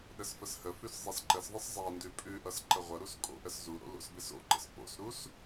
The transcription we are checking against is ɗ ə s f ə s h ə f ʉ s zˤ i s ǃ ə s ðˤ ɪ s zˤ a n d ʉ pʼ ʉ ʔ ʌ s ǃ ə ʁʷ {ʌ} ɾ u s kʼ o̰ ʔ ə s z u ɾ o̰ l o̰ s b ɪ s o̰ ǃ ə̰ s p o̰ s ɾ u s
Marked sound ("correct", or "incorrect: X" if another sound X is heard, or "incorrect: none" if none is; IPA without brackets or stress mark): correct